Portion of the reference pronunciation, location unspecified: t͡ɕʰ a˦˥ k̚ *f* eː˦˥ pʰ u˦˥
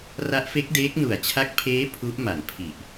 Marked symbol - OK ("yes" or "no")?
no